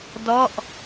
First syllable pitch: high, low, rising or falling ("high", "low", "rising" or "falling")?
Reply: falling